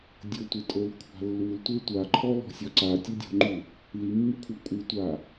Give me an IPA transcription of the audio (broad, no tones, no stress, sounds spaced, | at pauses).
dʲ ɤ tʷ e tʼ o l kʷʰ a̤ lː u l tʷ e tʷ a ǃʰ ɔ l ɔ̤ sʲ ɔ ǀ a tʲ o dʲ ɔ̤ ŋ͡ǃ u | l i mː u kʷʰ a kʷʼ ɯ tʷ a